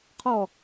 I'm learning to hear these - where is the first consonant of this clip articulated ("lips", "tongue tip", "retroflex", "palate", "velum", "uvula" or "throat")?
uvula